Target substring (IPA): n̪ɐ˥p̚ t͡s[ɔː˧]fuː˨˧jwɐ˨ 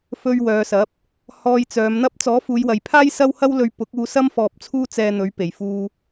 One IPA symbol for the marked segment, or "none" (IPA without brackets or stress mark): ɔː˨˥